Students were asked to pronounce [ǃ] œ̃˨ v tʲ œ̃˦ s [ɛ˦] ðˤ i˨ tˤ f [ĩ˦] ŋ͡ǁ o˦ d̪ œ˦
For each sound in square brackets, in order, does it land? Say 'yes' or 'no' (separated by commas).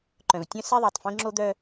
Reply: yes, yes, yes